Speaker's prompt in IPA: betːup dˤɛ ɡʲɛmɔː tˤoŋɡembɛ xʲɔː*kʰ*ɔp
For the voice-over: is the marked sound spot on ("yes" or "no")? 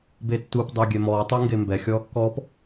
no